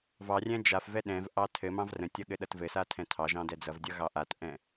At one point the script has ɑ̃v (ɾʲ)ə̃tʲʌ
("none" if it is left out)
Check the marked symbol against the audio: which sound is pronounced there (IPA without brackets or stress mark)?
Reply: r